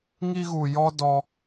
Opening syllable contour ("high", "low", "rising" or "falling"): high